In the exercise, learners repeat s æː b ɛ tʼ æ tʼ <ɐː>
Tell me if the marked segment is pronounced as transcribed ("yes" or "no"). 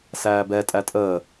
no